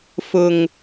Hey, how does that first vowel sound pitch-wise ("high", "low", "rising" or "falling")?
low